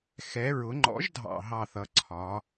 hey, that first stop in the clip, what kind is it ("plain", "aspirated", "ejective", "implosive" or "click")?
click